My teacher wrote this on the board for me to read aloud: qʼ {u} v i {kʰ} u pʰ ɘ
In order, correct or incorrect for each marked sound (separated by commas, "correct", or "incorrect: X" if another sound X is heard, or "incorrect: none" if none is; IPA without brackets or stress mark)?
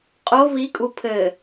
incorrect: o, incorrect: kʼ